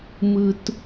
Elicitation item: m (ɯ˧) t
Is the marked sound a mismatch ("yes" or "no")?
no